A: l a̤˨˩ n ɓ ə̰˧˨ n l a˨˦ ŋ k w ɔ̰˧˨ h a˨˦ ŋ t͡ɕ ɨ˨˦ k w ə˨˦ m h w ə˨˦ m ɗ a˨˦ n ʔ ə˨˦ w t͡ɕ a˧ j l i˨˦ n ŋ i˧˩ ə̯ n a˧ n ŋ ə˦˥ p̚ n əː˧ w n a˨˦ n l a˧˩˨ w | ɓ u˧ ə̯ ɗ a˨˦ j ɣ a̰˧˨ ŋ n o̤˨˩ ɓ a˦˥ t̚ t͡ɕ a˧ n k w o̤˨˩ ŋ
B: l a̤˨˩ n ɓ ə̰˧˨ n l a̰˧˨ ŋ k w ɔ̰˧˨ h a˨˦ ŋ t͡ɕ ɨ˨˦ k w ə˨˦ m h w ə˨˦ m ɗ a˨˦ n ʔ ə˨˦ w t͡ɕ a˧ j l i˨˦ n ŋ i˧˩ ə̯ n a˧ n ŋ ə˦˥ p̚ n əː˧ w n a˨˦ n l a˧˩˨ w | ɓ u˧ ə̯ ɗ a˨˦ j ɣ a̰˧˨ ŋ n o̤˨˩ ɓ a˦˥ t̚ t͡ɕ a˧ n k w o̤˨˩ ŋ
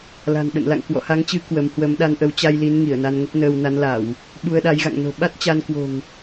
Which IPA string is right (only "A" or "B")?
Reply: B